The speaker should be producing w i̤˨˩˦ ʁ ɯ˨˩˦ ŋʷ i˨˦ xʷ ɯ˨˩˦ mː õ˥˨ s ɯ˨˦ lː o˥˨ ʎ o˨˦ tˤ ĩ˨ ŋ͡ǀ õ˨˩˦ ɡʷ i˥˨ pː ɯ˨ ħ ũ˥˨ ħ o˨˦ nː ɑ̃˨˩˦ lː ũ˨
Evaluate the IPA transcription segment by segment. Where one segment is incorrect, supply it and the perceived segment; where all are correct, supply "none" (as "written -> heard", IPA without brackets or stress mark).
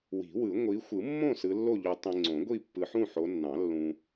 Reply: ʁ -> w